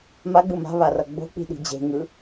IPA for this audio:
maɡ͡bɯ ma̤βarʌ ɡ͡bo̤k͡pi̤ɗi̤ d͡ʑe̤ŋɯ

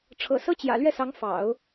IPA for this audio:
ʈ͡ʂʰɤ̰˨˩sɤ˥ t͡ɕjä̰˨˩lɥɛ˥˩sɑ˧˥ŋfɑ̰˨˩˦ʊ̯

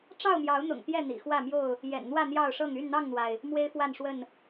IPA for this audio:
ʈ͡ʂɑ˥˨ʊ̯mjɑ˨˦ʊ̯n̪ʊ̰˨˩ŋ t̪jɛ˥˨ n̪ḭ˨˩xwä˥˨mjo˥˨ʊ̯ | jɛ̰˨˩nn̪wä˥˨ n̪jɑ˥˨ʊ̯ʂɤ˥˨ŋ y˥˨nn̪ɑ˥˨ŋn̪wa˩ɪ̯ | mwe˦ɪ̯fwa˥˨nʂwə˥˨n

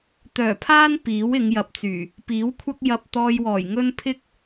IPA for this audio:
t̪œː˨˩pʰaː˥n piː˨˥wɪ˨˧ŋjɐ˨p̚t͡syː˨˩ | piː˨˥wkʷʰɐ˥k̚ jɐ˧p̚t̪ɔː˧jwɔː˨˩jŋɵ˥n pʰɪ˥k̚

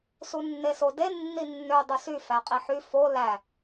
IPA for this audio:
sunːesode nːinːø dˤusy fæqʼiħy fo læ

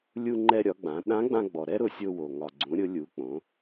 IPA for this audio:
lʲu˧ŋ͡ǃɛ˧ɾʲɒ˩˧ɡ͡bã˩˧ ɗã˧˥ɡ͡bã˧ɡ͡bɔ˩ ɾɛ˥ɾʊ˧sʲo˧ wo˩ ŋɒ˩ɡ͡ǀũ˩˧ɾʲʊ˩˧lʲu˩˧ k͡põ˩˧

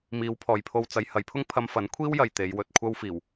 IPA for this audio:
miː˨˧wpʰɔː˨jpʰo˧w t͡sɐ˨˧j hɐ˨˥jpʰʊ˥ŋ pʰɐ˧mfɐ˨˥nkʷʰiː˥w jɐ˨jt̪e˨˧jwɵ˨t̚kʷʰɐ˥w fiː˨˩w

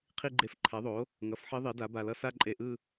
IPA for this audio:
qʰi˥˧ɡ͡ǃe˧˥f ǃʰɛ˩˥ðˤo˩˥ | ŋʌ˩˥fħi˧˥ ðˤi˩˥da˩˥ba˧˩lʌ˥˧ sa˥˧ǃʼe˧˩ʔɯ˥˧

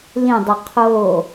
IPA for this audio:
lĩdˤɵ qʰo

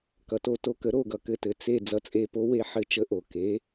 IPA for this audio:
kʌ˩to˧˩to˧˩kə˩˥ ɾo˧˩ɡʌ˩ kɘ˧˩tɘ˩˥ t͡se˧˩ d͡zʌ˩˥t͡sʼe˧˩po˧˥ we˧˥ħɘ˧˥t͡ʃə˧˥ʔo˩ ke˩˥

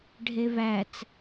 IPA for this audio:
ɖʱevæt͡s

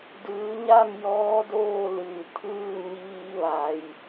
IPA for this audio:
dɯː˩˧ɲa˥˨m jɔː˧˥doː˥˨lɯː˩ t̪ʰɯː˥˨ ɲiː˧ʋa˩j

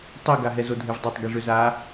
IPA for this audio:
tˤiɡa ɦɛzodʱevdˤetˤ ɡiʐʏza

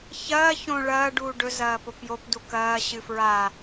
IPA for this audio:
çɐː çõ ɭɐː ɖuːɖɵ zɐːpopjop dukɐː ɕɨfɹa

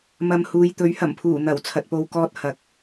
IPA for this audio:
mɐ˨˧mhuː˨jt̪ɵ˨˥ɥ hɐ˨˩mpʰuː˨˩n̪ɐ˨˩w t͡sʰɐ˨t̚po˨wkɔː˧t̚ hɐ˨˥k̚

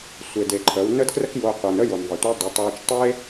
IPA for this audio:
sʷe˩de˩ ǃʰə˩˧w nə˥dkrə˥kjo˧ qʷɤ˩nə˥jo˩n ðˤə˩tʷə˧˥ dˤɤ˩˧tˤju˧t͡ʃ tˤe˥

